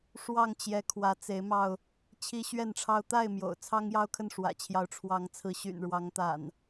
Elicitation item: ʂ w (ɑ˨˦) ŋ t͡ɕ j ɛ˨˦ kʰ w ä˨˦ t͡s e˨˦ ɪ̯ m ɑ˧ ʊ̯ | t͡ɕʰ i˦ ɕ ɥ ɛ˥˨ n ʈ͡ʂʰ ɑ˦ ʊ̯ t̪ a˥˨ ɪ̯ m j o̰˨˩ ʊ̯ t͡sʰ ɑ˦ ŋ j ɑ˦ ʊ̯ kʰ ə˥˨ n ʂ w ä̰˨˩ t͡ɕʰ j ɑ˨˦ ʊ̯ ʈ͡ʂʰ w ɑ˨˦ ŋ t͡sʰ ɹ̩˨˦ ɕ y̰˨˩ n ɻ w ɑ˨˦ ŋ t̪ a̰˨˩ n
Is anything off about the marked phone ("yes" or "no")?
yes